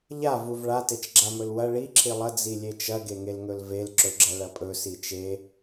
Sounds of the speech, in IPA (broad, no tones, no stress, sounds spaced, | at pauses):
ʎ a v u v ɭ a t e t͡ʃ ɡ͡ǁ a m ɵ l w ɐ ɭ i ǁʰ i lˠ ɐ d͡z i lʲ e t͡ʃ ɐ ɡ e ŋ e l ŋ ɵ l v e l ǁ ɵ ɡ͡ǁ ɐ ɭ ɐ pʼ ɵ s i t͡ʃ e